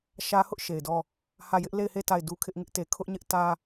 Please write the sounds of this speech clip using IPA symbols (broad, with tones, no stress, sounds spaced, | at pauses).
ʃ ä˦ h ʊ˦ ʔ ʃ e˨ ɪ̯ d ɔ˦ | h ä˦˨ j ɪ˦ ʔ l e˦˨ ɪ̯ h e˦˨ t a˦˨ ɪ̯ d u˦ kʰ ɪ˦ ʔ ŋ ɪ˦ ʔ t e˨ kʰ ʊ˦ ʔ ɲ ɪ˦ ʔ t ä˦